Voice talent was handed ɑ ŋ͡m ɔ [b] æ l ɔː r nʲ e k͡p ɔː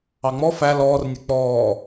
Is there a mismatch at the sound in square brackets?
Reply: yes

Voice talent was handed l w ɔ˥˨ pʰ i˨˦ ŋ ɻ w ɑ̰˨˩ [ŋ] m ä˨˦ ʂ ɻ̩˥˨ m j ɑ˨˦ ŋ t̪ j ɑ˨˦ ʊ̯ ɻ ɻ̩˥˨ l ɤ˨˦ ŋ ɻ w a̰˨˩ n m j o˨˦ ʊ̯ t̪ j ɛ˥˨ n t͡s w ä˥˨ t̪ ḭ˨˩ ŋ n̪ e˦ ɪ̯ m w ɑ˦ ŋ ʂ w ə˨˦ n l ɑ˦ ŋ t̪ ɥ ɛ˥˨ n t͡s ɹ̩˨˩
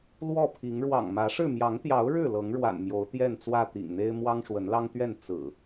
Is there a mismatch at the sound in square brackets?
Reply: no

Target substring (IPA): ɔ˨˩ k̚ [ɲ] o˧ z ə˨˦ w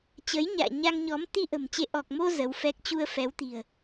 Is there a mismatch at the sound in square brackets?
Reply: yes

